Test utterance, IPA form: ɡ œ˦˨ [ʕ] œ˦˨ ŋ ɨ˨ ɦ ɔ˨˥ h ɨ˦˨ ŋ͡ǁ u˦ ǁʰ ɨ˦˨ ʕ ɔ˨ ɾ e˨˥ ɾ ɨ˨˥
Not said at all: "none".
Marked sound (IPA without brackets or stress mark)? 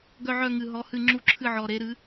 ʕ